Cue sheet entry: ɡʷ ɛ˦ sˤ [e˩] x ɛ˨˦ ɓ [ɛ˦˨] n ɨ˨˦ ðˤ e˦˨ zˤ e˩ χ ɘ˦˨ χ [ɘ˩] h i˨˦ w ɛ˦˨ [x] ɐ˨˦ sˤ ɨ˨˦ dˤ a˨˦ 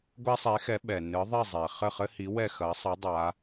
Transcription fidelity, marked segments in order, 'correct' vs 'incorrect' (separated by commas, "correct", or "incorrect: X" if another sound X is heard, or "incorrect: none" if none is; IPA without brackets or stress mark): incorrect: e˨˦, incorrect: ɛ˩, incorrect: ɘ˦, correct